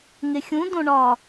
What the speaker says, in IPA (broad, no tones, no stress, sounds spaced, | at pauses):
ŋ e xʲ ũ d õ ɳ ɒ